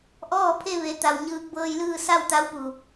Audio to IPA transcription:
ʔɔː˥˨pʰe˥˨ ʋe˩˧t̪a˩w ɲɯː˧k̚bɤː˧jlɯː˥˨ sa˥˨wt̪a˧˥w pu˩

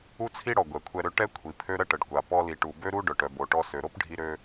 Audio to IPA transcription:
u˥t͡sʰi˥ɽɔ˩ ɡʷɛ˩ kʷʰɛ˧ɾø˧ ʈɛ˥kʷʰi˩ pʰø˥ɾə˥ʈə˩ɖ kʷa˩ pɔ˧li˩ʈu˩ bø˥ɾu˥ɖœ˩ʈ œ˩bo˩ʈɔ˧ sø˩ɾo˥pɖʱi˧ɾø˧

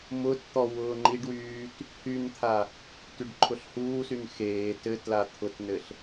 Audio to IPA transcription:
mʊtt̪ɔ wʊːŋ͡ǃiɖwyːt | hynt̪ʰa | tyɖǃʰʊɬhuːsyn xeː tɘ tlat̪ʰʊtnɘɬ

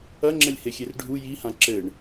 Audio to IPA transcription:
ɐŋ͡ǁɛlʲhexʲer ɖʱu jihã ǁɘɳ

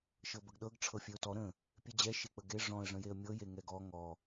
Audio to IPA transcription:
ʃɤbəɡɗɤɡ ʈ͡ʂʰɤfʲeʊ̯tɔ ɾə̃ | pʲed͡ʑɛ ʃek͡pəɡe ʐɔ̃ə̯ ʐə̃jeə̯mʲɤje ŋɛɡɔ ŋɔ

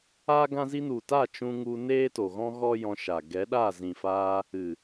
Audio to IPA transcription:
aː˦ɡã˦zi˦ nu˨ta˦˨ t͡ʃũ˧ŋu˧ neː˦to˨ɣɔ̃˦ ɣɔ˦jɔ̃˧ʃa˨ ɡɛ˨˦ɗa˦˨ zĩ˨faː˧ | ɨ˨

